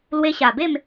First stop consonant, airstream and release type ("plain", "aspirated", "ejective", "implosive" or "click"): plain